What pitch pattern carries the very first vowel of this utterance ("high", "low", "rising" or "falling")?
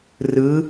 rising